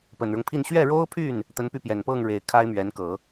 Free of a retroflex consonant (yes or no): no